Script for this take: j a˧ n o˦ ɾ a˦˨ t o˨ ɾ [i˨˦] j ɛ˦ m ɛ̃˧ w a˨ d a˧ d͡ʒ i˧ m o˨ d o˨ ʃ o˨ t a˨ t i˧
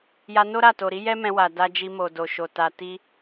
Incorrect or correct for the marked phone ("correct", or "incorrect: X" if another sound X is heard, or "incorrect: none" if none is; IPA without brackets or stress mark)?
correct